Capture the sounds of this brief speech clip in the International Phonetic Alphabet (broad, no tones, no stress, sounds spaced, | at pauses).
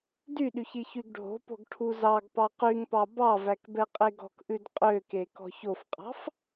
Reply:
d y ɗ y ç i ç y ɡ ɖʱ o̤ p o̤ ɡ ʈʰ u z ɑ ɡ p ɑ q y ŋ p ɑ b ɑ v æ k b ɛ qʼ e ɡ ɔ̤ k ʔ ʉ d qʼ ø k e k ɔ̤ ç o f qʼ ɑ̤ f